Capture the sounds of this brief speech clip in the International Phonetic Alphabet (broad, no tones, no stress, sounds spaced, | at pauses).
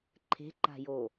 ǃʰ e̤ ǃ a̤ j o